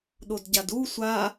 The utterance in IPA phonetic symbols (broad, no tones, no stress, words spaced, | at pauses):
ɗodɟadu sʷa